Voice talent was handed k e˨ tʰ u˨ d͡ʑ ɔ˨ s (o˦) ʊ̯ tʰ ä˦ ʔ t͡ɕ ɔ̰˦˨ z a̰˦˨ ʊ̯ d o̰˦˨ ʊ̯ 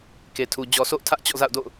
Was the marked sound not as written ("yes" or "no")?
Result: yes